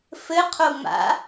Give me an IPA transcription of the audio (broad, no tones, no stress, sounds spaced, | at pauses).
f ɘ qʰ o ŋ͡m a̰